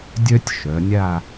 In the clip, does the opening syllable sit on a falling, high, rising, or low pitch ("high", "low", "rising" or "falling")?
high